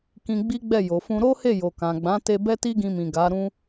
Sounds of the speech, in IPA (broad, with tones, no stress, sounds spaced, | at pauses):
k ĩ˧ ɡ͡b i˦ ɡ͡b ɛ˦˨ j o˨ f ũ˧ ɾ o˦ h e˦˨ j o˨ k ã˨ ɡ͡b ã˨˦ t e˧ b ɛ˦ t i˦ ɡ ĩ˧ m ĩ˨ ɡ a˨˦ ɾ ũ˦